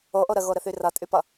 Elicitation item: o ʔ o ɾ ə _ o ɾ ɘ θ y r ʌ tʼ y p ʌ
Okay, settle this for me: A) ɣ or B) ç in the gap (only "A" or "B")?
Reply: A